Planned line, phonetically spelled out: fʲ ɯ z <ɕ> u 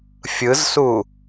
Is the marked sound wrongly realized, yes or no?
yes